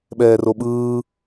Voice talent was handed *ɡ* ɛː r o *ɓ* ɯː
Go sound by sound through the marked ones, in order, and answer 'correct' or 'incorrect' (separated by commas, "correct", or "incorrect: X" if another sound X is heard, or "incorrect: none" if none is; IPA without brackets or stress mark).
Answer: incorrect: ɓ, correct